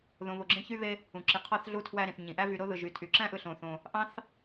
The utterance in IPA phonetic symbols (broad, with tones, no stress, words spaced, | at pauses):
ðõ˨βo˨ ɡ͡ǁẽ˥çy˥βe˦ | ũ˨ǁi˨qʰɑ˥θ ɮu˦tʰwæ˦ɾĩ˩θ ɲĩ˩ʔæ˥vy˨ ɾo˥ðɯ˩ ʒy˩tʰy˩ǁæ̃˥ʔɯ˨ ɬõ˩θõ˩ | ʔɑ̃˥θ